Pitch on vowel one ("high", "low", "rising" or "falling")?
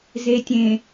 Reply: low